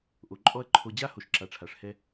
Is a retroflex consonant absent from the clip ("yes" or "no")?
no